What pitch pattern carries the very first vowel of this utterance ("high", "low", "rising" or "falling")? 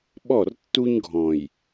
falling